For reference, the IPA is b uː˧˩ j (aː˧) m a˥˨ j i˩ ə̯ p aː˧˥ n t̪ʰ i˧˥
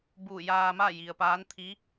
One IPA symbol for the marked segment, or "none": aː˧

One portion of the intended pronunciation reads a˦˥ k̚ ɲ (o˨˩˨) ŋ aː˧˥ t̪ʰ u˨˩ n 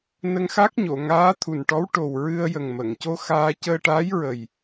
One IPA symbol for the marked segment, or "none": o˨˩˨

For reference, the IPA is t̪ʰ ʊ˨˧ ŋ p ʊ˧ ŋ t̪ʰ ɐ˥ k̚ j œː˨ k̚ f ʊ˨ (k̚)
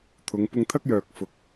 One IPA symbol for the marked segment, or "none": k̚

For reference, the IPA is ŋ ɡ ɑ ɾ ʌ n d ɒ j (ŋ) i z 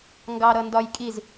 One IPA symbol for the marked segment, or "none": kʼ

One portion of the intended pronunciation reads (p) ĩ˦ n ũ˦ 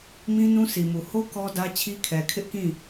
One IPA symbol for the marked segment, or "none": m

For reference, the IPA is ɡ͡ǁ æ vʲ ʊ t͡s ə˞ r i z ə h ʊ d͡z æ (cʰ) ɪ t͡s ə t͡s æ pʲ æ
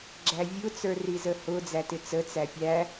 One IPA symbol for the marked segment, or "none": t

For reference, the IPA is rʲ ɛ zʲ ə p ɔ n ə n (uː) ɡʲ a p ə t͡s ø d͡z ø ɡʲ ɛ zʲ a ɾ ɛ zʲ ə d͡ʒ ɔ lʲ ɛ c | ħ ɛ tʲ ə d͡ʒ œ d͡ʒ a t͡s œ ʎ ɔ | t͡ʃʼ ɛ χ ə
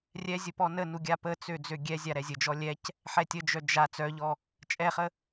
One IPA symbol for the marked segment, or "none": u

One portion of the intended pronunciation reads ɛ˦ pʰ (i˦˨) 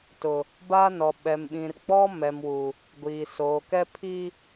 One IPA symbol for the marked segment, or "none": i˦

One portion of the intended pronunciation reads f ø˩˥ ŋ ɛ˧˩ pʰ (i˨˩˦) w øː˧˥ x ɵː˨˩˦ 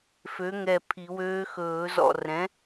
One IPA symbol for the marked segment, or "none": i˨˩˦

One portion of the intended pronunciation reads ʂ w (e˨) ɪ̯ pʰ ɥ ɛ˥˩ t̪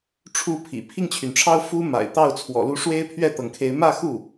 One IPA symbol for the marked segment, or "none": e˥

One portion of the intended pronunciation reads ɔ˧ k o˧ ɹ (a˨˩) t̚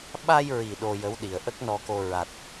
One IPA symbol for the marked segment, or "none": a˨˩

